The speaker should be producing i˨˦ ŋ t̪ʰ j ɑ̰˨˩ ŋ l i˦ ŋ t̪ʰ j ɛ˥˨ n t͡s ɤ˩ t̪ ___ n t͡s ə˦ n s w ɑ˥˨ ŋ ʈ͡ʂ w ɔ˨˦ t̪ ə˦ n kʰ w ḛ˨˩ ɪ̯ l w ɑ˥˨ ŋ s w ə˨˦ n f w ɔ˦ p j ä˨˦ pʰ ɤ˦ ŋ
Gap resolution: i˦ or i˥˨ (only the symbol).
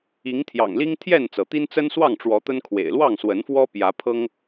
i˦